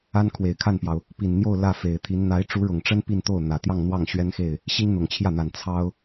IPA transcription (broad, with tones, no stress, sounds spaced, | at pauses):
a˥ n kʰ w e˨˩ ɪ̯ kʰ a˥˩ n p j ɑ˩ ʊ̯ | p i˨˩ n n̪ j o˥˧ ʊ̯ l ä˥˩ f e˨˩ ɪ̯ t̪ʰ i˧˥ n n̪ a˧˥ ɪ̯ ʈ͡ʂ u˧˥ ɻ ʊ˨˩ ŋ ʈ͡ʂ ə˥ n p i˥˧ n t̪ o˥˩ ʊ̯ n̪ ä˨˩ t̪ j ɑ˥˧ ŋ n̪ w ɑ˥˩ ŋ ɕ ɥ ɛ˥ n x e˥˩ ɪ̯ | ɕ i˥ ŋ n̪ ʊ˨˩ ŋ t͡ɕʰ j ä˥˩ n̪ a˨˩ n t͡sʰ ɑ˥ ʊ̯